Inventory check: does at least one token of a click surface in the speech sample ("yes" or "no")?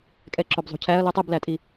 yes